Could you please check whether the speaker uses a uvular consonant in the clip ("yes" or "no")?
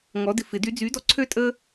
no